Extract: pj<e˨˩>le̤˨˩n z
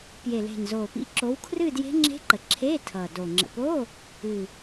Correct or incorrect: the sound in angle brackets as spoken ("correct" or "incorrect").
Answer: correct